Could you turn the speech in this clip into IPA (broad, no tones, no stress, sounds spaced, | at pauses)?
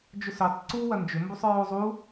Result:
d͡ʒ ʊ s ø tˤ ǀ u w ɐ n d͡ʒ ʏ m b u sˤ ɹ o zˤ u